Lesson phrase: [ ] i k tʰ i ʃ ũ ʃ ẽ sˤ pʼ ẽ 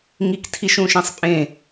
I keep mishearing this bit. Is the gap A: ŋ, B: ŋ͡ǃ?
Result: A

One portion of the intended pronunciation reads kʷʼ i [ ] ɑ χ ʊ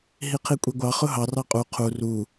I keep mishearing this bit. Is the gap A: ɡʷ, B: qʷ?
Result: A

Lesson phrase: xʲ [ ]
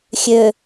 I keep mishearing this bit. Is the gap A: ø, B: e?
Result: A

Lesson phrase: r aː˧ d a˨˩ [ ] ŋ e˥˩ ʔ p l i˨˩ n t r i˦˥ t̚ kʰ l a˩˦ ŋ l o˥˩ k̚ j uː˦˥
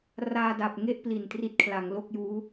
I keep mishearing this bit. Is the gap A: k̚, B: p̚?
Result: B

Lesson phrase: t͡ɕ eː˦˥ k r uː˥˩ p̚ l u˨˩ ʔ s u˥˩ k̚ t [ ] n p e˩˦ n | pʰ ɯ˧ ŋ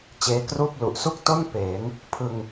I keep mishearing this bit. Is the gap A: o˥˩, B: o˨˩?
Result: A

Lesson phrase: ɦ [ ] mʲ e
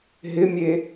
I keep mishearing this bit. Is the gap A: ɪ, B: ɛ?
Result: A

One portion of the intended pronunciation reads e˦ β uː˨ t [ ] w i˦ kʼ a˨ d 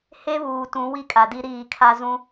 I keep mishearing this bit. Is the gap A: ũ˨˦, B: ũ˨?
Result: A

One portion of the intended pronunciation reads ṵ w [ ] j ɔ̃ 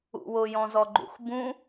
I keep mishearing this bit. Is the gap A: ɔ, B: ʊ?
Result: B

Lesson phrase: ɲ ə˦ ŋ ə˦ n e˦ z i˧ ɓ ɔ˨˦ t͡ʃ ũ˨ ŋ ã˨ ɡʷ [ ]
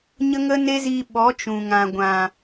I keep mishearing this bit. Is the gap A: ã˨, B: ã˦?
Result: A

